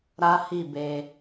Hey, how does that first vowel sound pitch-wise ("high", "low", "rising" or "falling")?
high